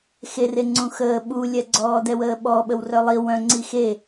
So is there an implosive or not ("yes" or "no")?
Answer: yes